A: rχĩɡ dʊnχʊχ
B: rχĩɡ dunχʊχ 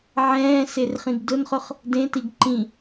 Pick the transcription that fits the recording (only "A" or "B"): A